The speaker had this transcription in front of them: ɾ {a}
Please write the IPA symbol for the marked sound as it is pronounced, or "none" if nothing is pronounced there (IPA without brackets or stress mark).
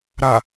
a